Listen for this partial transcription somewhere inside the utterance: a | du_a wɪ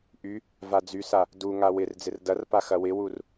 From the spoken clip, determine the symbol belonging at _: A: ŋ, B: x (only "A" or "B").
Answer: A